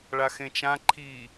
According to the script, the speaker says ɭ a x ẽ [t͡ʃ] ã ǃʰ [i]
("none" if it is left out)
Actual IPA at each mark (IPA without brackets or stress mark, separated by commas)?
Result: t͡ʃ, i